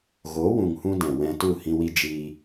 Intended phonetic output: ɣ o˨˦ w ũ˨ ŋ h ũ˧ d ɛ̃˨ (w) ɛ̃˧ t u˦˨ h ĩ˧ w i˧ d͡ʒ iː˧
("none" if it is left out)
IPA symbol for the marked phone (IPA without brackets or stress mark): w